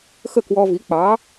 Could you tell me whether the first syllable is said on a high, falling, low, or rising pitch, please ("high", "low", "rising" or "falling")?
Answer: falling